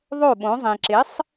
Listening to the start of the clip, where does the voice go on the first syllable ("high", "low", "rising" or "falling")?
falling